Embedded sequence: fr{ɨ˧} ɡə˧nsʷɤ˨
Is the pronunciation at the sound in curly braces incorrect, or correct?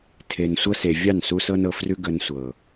incorrect